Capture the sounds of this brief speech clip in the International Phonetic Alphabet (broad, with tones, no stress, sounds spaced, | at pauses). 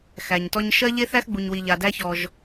x æ˨ ɲ t ɔ˦ ɲ ʃ ɜ˥ ʎ e˥ θ æ˦ x ɡ͡b u˨ ɲ w i˨ ʎ a˨ d æ˦ ç ɔ˨ ʒ